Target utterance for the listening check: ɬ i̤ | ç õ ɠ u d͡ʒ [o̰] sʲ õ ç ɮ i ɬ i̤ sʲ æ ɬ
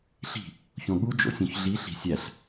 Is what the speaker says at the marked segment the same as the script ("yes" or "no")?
yes